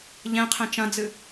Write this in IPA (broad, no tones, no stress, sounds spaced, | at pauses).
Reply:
ʎ ɛ̃ qʰ ɛ̃ t͡ʃ ɐ̃ d͡z ɨ